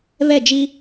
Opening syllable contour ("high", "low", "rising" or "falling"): falling